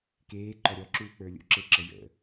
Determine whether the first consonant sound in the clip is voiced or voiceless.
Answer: voiceless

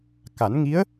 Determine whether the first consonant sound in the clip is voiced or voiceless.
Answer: voiceless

